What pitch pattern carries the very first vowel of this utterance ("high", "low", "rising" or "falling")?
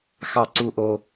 falling